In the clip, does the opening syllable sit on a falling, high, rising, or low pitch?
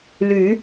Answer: rising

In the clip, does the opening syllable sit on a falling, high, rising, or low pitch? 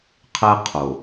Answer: high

